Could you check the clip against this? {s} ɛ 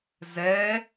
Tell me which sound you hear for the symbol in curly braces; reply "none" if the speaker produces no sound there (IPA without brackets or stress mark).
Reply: z